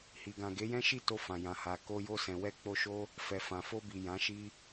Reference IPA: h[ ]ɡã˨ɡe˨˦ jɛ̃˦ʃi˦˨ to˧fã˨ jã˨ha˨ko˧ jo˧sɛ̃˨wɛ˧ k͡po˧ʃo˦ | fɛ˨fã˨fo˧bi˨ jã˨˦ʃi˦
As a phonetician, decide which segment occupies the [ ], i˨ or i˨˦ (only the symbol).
i˨